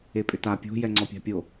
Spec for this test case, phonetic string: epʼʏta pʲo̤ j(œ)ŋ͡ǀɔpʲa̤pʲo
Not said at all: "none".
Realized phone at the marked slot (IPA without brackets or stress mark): ɛ